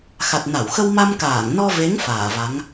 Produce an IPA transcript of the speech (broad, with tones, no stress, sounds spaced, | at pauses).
x a˨˩ t̚ n a˧˩ w x ə˧ w m a˧ m k aː˧˩ ŋ n ɔ˧ v e˨˦ ŋ f aː˧˩ v a˨˦ ŋ